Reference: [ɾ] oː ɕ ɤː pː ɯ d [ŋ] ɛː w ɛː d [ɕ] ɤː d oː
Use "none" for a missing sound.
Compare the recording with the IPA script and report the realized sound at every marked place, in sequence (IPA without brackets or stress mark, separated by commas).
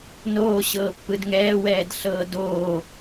n, ŋ, ɬ